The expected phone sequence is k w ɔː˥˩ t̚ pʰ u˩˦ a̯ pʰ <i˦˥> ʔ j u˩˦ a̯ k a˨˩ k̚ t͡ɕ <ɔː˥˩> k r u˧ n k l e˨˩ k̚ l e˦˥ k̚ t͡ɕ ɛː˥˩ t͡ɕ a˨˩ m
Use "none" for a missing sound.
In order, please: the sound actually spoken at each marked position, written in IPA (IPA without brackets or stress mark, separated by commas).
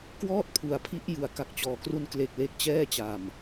i˦˥, ɔː˨˩